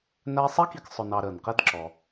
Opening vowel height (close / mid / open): open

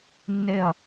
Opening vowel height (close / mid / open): mid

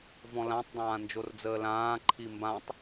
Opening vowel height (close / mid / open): mid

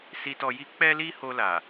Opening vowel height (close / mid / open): close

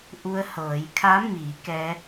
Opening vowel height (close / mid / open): close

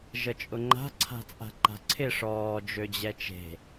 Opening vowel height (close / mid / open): mid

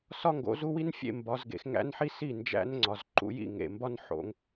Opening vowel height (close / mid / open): open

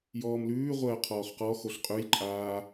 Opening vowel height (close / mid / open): mid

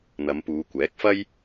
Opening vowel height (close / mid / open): open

